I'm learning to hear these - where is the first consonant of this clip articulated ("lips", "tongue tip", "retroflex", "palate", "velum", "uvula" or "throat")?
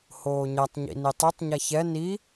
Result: throat